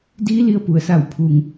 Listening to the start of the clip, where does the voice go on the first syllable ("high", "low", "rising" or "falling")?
rising